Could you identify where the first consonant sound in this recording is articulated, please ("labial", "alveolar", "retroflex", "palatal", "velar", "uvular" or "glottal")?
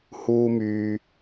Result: glottal